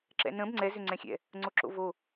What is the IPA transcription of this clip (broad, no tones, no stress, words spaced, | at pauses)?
ǁɛ̰nə̃b ŋ͡ǀɛ zʏŋ͡ǀɛ̃xʲɛ̰ | ŋ͡ǀoǁo̰vo